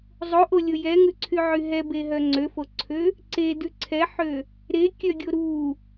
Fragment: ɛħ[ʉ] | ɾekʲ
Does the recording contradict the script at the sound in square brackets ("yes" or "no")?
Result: yes